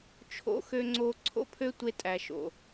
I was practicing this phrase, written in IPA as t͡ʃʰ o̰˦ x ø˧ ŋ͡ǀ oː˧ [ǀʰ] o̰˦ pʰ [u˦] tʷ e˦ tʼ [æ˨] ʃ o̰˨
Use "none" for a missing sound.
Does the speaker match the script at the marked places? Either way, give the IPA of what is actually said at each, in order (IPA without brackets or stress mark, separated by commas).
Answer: ǀʰ, ø˦, æ˨